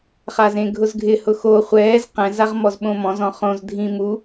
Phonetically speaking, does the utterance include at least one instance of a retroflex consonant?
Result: no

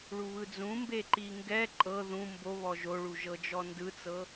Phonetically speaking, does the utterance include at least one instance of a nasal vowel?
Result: yes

